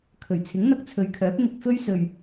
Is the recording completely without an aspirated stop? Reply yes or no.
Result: no